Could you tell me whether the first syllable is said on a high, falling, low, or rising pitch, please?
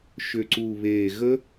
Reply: low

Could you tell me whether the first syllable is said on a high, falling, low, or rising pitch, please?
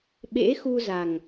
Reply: rising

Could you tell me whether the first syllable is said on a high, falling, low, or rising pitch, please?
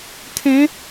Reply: rising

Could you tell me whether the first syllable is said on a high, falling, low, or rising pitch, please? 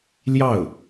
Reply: falling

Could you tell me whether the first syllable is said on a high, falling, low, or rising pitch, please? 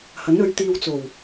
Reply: rising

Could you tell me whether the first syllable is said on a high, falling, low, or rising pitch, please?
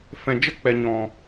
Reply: low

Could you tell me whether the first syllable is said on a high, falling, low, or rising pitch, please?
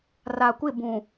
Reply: low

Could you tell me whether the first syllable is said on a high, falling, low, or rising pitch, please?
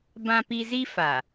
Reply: high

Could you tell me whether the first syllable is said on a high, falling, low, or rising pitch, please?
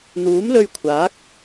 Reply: rising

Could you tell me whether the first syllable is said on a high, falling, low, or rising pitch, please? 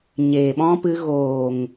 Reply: low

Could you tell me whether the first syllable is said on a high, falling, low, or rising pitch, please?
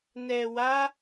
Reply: low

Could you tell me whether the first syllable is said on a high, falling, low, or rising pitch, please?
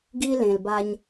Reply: high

